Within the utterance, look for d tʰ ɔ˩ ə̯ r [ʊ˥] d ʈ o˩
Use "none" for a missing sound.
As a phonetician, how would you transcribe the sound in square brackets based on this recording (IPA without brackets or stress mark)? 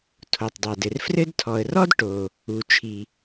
ɔ˥